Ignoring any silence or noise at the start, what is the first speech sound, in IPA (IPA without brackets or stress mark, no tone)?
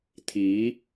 t̪ʰ